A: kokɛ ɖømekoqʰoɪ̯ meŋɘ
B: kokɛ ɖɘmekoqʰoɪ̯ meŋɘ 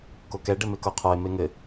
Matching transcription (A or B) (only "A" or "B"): B